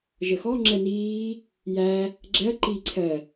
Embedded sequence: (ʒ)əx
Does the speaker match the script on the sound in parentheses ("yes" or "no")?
yes